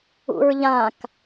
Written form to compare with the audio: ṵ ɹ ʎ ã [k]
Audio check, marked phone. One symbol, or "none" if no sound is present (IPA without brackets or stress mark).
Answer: k